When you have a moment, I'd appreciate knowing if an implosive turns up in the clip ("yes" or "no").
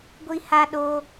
yes